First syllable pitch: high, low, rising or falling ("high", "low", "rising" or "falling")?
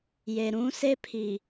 low